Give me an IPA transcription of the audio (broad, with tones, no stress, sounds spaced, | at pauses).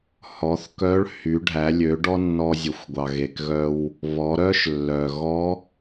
h ɔ˩˧ θ k œ˧˥ ɭ h y˩˧ ɖʱ æ˩˧ lʲ ø˩˧ ɖ ɔ˥ nː ɔ˧ zʲ ø˩ xʷ ɡʷ ɑ˩ ɣ e˩ k ɣ œ˧ w | β ɔ˩˧ ɾ œ˥ ʃ lː œ˩ ɣ ɔ˧˥